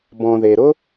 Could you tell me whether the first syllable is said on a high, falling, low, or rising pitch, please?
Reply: low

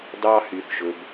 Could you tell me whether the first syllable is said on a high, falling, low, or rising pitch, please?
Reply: high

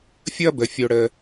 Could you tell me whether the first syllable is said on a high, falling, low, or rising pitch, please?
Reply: high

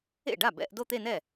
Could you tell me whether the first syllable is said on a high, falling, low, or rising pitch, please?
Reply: falling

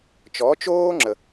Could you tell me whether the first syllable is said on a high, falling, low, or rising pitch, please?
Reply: rising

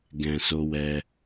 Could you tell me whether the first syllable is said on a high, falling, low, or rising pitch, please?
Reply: low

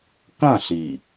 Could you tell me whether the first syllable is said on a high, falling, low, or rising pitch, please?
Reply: falling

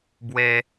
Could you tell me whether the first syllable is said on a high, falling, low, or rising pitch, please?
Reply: high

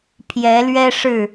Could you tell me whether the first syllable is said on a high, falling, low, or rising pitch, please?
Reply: rising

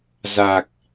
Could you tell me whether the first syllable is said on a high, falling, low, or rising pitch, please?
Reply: low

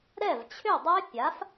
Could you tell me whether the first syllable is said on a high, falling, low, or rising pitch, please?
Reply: falling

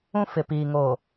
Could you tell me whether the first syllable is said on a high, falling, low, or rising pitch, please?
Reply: high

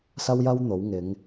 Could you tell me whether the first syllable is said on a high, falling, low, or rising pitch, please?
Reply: high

